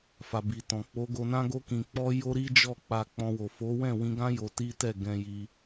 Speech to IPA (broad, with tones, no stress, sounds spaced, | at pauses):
f a˨ b i˨ t ɔ̃˨ k͡p o˨˦ ɡ o˧ n ã˦ ɡ o˦ k ĩ˧ k͡p ɔ˦ j o˦ ɾ i˦ d͡ʒ ɔ˦˨ k͡p a˧ k͡p ɔ̃˧ w o˨ f o˨˦ w ɛ̃˦˨ w ĩ˧ ɡ ã˦ j o˧ t i˦ t ɛ˦˨ ɡ ɛ̃˧ j i˧